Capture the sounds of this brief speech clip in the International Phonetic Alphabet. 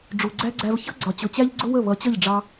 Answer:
ɖ͡ʐ u˨ ɡ͡ǀ æ˦ ɡ͡ǀ æ˧ v ç ʌ˦ ɡ͡ǀ ɒ˨ t͡ɕ ʊ˨ t͡ɕ æ˦ ʎ ɡ͡ǀ ʊ˦ w ə˦˨ β ʌ˨˦ t͡ɕ ʌ˦˨ ʎ ɖ͡ʐ ɑ˦

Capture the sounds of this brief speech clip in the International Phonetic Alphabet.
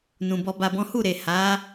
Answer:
n ũ˨ b ɔ˧ b a˧ b ɔ̃˦ h u˦˨ ɾ e˨ h a˨˦

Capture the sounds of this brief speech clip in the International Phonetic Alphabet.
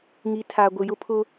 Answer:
ŋ i˨˦ tʰ a˨ ɡʷ ɪ˨ j ʊ˦ pʰ ʊ˦

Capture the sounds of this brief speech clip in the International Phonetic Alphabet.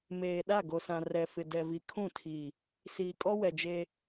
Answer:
m eː˨ ɗ a˦˨ ɡ o˨ s ã˨ r ɛ˨ f ɪ˨ d ɛ˨ v i˨ kʰ ũ˦˨ tʰ i˨ | s iː˨ kʼ ɔ˦ w ɛ˨ d͡ʒ e˦

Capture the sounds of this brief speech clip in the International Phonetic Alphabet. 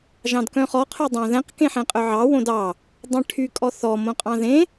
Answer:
ʒ ɑ̃ d k œ̃ χ ɔ qʰ œ dˤ ɑ̃ ð ɛ̃ q k ẽ ħ ɛ̃ qʼ œ ʕ ɑ w õ d ɑ | dˤ ɛ̃ ʈʰ y kʼ ɔ θ ɔ m õ qʼ ɑ̃ ð ẽ

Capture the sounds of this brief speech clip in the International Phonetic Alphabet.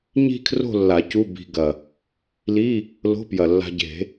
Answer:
ɲ i̤˥˧ kʰ r o̤˥˧ lː a˨˩˦ c u˧˥˧ b i̤˧ ɡ ɐ˨˩ | l i˧˥˧ | l o̤˧˥˧ p j ɐ˨˩ lː a̤˧ ɟ e̤˨˩˦

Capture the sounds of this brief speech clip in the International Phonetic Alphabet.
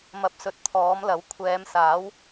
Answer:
m ɐ˧ p̚ s ɵ˨˥ t̚ t̪ʰ ɔː˨˥ m l ɐ˨˥ w kʷʰ ɛː˨˧ m s aː˨˥ w

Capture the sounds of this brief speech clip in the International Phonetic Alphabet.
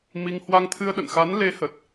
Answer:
m i˧ ŋ h w a˧ ŋ t̪ʰ ɨ˧ ə̯ ɗ ə̰˧˨ n x a˨˦ n l e˨˦ h ə˨˩ t̚

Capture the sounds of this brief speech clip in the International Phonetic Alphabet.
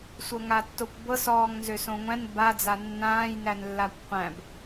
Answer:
sʷ ɤ ŋ a tː o kʷ b ɤ s ɔː ŋ n z ø s õ ŋʷ æ̃ n b a d͡z a nː ãː j n æ n lː a kʷ qʷ æ̃ b

